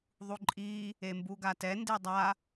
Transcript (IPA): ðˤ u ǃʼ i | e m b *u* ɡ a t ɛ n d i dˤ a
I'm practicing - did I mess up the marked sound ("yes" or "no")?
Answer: no